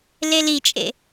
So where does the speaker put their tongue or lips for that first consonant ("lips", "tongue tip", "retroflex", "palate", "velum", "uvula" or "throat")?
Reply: tongue tip